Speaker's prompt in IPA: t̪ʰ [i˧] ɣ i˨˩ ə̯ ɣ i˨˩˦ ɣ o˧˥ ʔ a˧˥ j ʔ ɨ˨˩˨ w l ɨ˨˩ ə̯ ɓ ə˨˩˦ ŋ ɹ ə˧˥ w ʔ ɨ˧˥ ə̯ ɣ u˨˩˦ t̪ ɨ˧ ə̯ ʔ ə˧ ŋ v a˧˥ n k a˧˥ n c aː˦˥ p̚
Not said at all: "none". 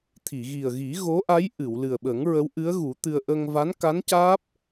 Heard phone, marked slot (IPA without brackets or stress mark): i˨˩˨